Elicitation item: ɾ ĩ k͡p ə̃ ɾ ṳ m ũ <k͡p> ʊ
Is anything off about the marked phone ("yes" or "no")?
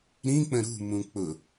no